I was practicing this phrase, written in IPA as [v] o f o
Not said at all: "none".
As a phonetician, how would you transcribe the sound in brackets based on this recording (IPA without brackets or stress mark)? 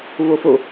v